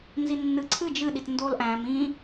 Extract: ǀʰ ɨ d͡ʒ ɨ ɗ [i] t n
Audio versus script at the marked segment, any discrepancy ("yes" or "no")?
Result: no